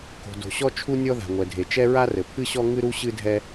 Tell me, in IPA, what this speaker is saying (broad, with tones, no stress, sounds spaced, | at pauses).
k o̤˩ d o̤˩ ɕ ɔ˥ t͡ʃʰ u˥ nʲ ɔ˥ ð a̤˩ ŋʷ ɛ˩ dʱ e˩ t͡ʃ ɛ˥ ɹ a˥ r ɘ˩ pʰ ɨ˥ ɕ ɔ˥ ŋ ɨ˥ ɾ u˥ ɕ ɨ˥ dʱ ɛ˥